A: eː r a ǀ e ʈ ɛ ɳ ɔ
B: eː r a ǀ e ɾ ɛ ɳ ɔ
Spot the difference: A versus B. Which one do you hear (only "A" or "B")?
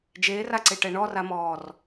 A